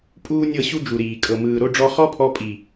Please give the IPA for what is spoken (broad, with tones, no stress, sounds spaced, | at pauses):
pʼ uː˦ nʲ ɤ˦˨ ɕ u˦ d͡ʒ u˨ ɾ iː˨ kʼ ɤ˨ m ɯː˨ ɾ o˦ ɖ͡ʐ ɔ˧ χ ɔ˦ pʰ ɔ˧ pʼ i˨